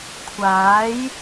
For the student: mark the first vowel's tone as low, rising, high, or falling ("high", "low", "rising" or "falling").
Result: rising